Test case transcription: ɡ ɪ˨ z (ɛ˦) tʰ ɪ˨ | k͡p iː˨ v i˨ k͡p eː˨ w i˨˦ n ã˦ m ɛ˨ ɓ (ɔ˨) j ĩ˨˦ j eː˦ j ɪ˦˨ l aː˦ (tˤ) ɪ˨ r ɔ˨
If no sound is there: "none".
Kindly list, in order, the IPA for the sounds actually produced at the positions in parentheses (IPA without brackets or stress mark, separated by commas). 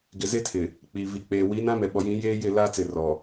e˦, ɔ˨, t͡s